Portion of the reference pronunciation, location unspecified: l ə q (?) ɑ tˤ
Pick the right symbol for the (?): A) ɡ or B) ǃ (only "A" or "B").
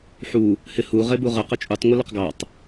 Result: A